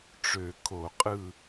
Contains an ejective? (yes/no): yes